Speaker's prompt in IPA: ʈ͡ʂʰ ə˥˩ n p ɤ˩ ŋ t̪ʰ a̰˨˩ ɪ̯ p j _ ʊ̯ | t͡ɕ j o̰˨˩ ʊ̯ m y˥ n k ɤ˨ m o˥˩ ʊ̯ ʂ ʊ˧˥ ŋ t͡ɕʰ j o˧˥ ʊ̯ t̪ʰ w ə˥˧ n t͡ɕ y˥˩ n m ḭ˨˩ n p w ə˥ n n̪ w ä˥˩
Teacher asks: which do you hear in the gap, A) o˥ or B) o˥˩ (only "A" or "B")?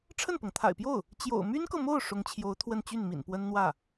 B